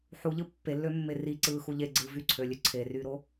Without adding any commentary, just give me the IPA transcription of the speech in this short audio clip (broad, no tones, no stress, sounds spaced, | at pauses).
ħ u ʎ ɯ pː e lː ø mː e r i ǀ ɯː x u ʎ e ɡ͡ǀ ɯː v y ǀʰ ø lʲ ø ǀʰ e r yː ɾ o